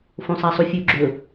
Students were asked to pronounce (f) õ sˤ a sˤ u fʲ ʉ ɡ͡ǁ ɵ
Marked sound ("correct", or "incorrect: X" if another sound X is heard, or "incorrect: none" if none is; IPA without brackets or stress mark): correct